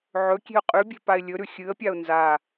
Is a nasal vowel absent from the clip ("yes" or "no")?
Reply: yes